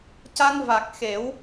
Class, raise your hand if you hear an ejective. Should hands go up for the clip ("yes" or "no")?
no